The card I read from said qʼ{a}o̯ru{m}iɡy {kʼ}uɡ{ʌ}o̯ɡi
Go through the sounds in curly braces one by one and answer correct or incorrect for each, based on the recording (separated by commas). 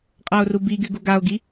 correct, incorrect, incorrect, incorrect